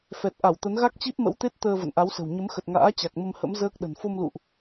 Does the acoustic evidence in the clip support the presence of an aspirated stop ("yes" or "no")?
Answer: no